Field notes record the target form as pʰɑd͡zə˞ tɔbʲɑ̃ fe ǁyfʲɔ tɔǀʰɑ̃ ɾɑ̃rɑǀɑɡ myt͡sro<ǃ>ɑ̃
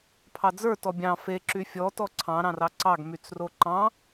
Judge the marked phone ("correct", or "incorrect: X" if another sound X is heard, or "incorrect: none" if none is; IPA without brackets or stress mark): correct